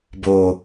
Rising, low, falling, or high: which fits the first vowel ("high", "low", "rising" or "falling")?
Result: low